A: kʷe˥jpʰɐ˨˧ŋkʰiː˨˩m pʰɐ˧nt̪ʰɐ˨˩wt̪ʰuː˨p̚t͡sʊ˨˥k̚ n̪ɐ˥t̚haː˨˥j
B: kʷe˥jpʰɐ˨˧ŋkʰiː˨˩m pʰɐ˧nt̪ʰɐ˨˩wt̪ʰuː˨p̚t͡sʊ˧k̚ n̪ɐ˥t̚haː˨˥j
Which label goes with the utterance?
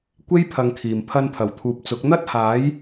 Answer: A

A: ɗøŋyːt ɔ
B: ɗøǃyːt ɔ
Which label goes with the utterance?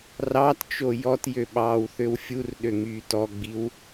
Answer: A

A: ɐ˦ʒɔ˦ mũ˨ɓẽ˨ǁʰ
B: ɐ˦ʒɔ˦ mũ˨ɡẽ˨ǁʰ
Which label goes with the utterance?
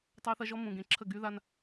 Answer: B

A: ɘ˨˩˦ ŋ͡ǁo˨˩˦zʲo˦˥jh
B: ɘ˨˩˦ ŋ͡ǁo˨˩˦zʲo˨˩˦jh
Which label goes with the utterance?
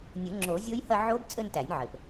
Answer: A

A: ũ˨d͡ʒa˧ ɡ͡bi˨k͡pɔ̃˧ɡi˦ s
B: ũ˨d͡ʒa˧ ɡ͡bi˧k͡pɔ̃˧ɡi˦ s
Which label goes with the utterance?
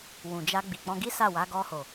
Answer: A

